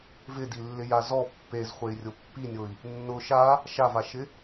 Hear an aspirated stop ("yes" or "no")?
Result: no